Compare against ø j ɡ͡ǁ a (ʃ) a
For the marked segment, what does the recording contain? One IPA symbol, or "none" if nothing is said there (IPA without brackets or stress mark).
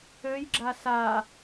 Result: s